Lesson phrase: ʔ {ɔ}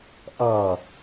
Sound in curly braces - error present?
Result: yes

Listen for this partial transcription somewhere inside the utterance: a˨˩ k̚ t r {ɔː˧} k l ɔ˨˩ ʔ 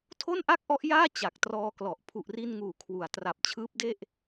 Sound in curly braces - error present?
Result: no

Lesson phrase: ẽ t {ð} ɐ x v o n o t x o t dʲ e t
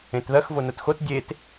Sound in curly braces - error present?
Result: no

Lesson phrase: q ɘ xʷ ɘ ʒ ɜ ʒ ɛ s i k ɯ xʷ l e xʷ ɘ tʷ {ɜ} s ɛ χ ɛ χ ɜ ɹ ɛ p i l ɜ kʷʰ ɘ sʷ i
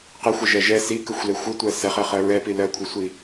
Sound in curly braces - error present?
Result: no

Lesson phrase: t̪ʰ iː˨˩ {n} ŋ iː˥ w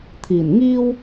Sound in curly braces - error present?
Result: no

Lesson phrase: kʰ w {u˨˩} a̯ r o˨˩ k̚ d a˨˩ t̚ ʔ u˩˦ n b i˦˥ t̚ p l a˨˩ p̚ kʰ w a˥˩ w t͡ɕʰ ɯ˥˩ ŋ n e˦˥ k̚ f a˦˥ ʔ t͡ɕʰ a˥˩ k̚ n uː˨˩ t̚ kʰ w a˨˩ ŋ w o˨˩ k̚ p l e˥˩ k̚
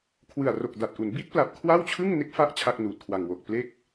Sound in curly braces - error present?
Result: yes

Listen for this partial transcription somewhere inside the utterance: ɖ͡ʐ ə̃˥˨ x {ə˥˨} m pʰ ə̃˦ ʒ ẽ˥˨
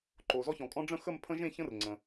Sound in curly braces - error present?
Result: no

